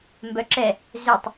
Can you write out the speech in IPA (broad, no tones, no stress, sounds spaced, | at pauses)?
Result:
m b œ ǁ ɛ | z ø tˤ